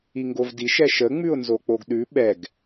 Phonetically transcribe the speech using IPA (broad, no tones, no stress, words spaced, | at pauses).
iŋɡovdiʃ ɛʃə ŋ͡mʉʊ̯nzok͡poɡɗʉ ɓɛɡ